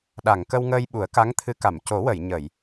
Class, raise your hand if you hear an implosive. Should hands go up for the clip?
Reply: yes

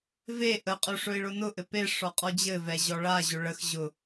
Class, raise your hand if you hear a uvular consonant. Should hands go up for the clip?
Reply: yes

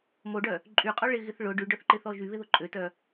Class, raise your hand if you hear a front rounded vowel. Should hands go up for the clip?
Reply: yes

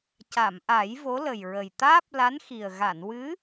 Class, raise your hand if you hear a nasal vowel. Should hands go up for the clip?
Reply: no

